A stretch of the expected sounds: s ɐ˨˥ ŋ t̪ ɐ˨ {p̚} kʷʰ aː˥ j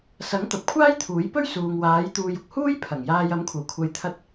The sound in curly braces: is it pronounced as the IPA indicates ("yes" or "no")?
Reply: yes